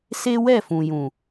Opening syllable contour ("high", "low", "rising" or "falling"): high